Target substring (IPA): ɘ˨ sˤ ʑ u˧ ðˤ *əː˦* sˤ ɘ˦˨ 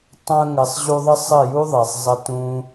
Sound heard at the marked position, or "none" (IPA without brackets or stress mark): ə˦